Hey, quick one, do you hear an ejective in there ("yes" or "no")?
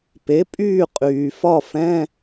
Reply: yes